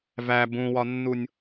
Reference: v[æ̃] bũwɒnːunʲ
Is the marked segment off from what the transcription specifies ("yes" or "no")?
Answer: yes